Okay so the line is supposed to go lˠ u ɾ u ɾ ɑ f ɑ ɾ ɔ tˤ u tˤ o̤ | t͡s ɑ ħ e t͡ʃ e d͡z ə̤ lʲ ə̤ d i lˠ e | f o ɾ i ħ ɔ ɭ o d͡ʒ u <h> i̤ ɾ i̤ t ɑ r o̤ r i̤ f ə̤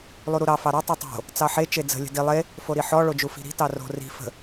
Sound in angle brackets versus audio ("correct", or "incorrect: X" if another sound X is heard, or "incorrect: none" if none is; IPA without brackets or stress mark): incorrect: f